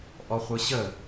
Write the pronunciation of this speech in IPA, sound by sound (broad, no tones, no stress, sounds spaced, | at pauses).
ʔ ɔ χʷ ɯ ɕ ə